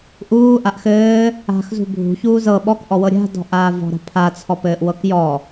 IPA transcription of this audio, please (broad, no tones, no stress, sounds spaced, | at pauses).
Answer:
ʔ uː ʔ a ʔ x ɘː | a̤ x z ṳ bʱ ṳ ç uː z ɤ ɓ ɔ k ʔ ɔ w ɤ ɾʲ a̤ d ɔ̤ ʔ aː v ɔ̤ ɾ a̤ pʰ a t͡sʰ ɔ p ɘː ʔ w ɤ k j ɔ